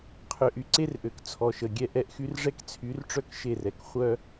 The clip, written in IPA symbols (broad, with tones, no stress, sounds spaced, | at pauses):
qʰ ø˨ ʔ y˦ ǀ e˦ r ʔ ø˨ k t͡sʰ ɔ˨ ʃ ə˨ ɡʲ ɛ˦ ʔ ɛ˨ ʔ x y˦ r ʐ ɛ˦ k t͡sʰ y˨˦ r ʈ͡ʂ œ˦ k ʃ e˦˨ r ɛ˨ k χʷ œ˦